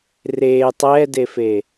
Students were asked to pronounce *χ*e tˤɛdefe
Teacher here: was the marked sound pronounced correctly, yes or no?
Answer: no